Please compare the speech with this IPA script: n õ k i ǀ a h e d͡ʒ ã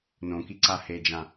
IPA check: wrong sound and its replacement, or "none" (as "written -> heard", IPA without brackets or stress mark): none